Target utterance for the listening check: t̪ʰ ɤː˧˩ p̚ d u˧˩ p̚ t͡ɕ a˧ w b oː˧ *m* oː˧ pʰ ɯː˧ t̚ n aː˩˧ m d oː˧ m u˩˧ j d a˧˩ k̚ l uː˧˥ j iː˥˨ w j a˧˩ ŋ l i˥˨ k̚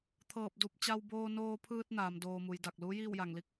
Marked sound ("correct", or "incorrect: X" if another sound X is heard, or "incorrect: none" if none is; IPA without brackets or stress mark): incorrect: n